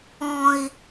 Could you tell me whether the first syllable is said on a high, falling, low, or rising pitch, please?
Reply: low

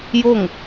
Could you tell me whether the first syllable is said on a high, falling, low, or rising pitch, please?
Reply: falling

